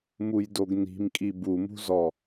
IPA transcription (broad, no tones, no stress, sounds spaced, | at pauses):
m u j d o ɡ n i̤ m kʼ i b u m ṳ z ɔ